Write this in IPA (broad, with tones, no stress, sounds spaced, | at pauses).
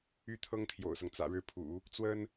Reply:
y˥ t̪ʰ ɤ˥ ŋ t̪ʰ j o̰˨˩ ʊ̯ s ɤ˦ ŋ t͡s ä̰˨˩ ɻ ɻ̩˥˩ pʰ ṵ˨˩˦ | t͡s w ə˥ n